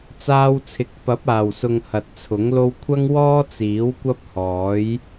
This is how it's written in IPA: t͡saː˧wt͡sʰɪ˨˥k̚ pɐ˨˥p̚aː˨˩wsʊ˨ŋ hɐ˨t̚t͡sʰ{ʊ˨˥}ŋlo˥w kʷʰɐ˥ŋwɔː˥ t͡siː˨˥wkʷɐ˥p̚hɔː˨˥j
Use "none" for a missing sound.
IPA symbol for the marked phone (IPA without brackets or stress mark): ʊ˨˥